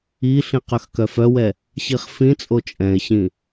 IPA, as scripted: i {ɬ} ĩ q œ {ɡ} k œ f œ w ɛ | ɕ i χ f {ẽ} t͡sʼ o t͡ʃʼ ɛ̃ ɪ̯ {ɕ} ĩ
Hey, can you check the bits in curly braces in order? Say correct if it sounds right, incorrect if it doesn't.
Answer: correct, incorrect: x, incorrect: ĩ, correct

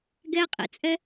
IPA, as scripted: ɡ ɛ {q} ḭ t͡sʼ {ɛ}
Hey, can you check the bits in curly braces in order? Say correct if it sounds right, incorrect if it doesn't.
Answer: incorrect: qʼ, correct

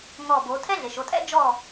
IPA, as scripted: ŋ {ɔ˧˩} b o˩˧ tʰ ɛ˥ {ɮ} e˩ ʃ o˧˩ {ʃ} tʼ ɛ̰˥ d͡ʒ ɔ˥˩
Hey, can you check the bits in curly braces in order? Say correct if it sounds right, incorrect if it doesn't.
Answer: correct, correct, incorrect: none

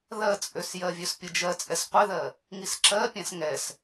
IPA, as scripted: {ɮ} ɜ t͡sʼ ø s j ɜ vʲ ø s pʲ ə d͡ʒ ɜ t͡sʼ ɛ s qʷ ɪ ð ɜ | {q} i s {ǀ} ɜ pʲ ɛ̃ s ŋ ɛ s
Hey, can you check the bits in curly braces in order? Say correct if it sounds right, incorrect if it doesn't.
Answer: incorrect: ð, incorrect: ŋ, incorrect: ǁ

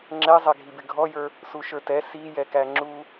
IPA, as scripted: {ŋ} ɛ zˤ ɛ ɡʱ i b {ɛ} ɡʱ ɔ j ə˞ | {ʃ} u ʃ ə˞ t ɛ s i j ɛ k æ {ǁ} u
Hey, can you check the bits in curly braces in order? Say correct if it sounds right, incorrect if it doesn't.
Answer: incorrect: ŋ͡ǁ, incorrect: ɪ, incorrect: s, incorrect: ŋ͡ǁ

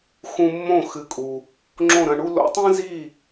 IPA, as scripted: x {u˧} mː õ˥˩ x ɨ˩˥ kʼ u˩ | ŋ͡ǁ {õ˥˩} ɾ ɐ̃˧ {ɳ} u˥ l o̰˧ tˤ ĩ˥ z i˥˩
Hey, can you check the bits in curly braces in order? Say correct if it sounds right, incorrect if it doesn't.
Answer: incorrect: ũ˧, correct, correct

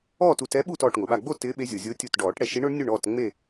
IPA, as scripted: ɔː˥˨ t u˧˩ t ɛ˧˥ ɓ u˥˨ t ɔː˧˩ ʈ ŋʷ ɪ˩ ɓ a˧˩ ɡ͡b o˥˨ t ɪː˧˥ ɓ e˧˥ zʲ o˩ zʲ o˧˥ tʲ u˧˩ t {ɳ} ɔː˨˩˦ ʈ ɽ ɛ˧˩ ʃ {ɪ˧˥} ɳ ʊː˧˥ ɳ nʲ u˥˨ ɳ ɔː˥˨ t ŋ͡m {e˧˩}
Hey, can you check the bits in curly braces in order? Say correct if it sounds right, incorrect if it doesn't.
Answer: incorrect: ɖ, incorrect: i˧˥, incorrect: e˥˨

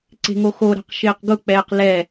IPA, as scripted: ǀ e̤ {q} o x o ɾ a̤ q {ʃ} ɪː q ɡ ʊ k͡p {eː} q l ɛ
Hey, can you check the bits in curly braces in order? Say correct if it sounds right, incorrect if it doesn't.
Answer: incorrect: ŋ, correct, incorrect: ɛː

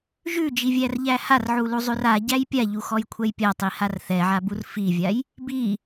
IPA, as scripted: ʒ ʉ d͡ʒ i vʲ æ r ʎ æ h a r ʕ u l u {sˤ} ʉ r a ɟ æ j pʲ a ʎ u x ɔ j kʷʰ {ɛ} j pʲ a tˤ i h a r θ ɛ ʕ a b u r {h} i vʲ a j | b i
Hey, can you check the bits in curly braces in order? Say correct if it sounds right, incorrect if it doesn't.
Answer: incorrect: zˤ, correct, incorrect: f

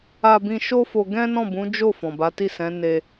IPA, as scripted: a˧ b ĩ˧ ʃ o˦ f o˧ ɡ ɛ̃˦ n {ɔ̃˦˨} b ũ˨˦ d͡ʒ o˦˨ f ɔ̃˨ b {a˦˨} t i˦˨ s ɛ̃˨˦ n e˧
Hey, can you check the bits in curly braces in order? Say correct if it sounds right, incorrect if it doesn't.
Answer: correct, incorrect: a˨˦

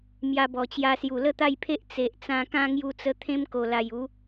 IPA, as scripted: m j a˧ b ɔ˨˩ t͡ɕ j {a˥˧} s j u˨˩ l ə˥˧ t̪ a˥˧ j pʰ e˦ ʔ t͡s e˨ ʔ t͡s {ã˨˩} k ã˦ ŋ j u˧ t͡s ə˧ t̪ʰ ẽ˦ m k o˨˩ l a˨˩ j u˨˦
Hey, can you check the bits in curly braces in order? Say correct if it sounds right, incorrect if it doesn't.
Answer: incorrect: a˧, incorrect: ã˧

